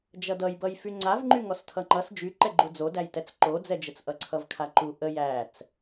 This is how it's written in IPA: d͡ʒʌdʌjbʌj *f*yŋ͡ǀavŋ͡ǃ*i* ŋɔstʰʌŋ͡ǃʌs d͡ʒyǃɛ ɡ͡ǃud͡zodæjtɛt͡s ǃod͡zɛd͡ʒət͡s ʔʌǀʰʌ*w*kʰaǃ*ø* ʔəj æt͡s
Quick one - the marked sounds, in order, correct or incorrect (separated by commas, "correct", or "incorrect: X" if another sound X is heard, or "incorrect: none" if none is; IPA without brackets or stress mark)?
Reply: correct, incorrect: y, incorrect: v, incorrect: u